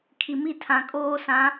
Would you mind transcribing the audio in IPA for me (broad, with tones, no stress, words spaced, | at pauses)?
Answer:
kʰi˨mi˦ tʰã˨kʼoː˦sã˨˦